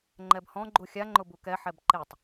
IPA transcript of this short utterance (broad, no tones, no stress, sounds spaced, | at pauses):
ŋ͡ǃ ɛ b h ɔ̃ ɡ͡ǃ u xʲ a ŋ͡ǃ ʊ b u k ɛ ħ ɛ b ǃ e tˤ